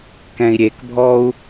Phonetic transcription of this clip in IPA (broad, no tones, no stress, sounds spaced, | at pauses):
k ɛ̃ i̯ ɾʲ e k bʱ ɔ u̯